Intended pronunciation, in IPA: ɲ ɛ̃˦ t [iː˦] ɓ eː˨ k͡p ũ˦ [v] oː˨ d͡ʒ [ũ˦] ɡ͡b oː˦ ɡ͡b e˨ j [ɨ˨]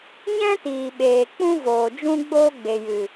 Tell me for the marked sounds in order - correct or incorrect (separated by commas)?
incorrect, correct, correct, correct